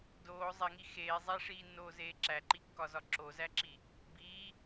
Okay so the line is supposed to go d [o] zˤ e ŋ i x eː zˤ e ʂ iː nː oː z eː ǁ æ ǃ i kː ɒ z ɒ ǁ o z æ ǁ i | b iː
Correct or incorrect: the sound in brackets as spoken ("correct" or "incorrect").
incorrect